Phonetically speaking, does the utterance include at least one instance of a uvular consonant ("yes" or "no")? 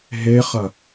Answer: yes